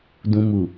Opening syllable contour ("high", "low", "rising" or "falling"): low